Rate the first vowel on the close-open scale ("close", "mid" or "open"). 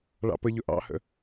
open